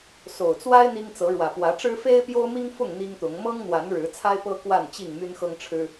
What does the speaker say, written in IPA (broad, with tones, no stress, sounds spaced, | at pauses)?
s o˨˩ ʊ̯ t͡s w a˦ ɪ̯ n̪ i˦ ŋ t͡s ɤ˨˦ ɻ w ä˨˩ p w ä˨˦ ʈ͡ʂ ɻ̩˦ f e˦ ɪ̯ p j o˦ ʊ̯ m i˦ ŋ f ʊ˥˨ ŋ n̪ i˦ ŋ t̪ ʊ˨˦ ŋ m ɤ˦ ŋ n̪ w a˨˦ n ɻ ɻ̩˨˦ t͡sʰ a˦ ɪ̯ p ɤ˦ k w a˥˨ n t͡ɕ i˥˨ ŋ m y˦ n x ɤ˦ ŋ ʈ͡ʂʰ ɻ̩˦